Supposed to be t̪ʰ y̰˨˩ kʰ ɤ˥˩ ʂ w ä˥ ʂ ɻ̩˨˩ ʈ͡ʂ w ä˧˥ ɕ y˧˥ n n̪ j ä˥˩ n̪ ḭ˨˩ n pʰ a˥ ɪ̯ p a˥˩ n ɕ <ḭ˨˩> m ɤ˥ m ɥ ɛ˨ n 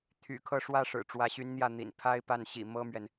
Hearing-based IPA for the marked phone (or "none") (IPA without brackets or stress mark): ḭ˨˩